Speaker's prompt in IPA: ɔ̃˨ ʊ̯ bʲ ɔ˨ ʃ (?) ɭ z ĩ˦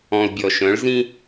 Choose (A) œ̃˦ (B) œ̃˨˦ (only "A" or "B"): B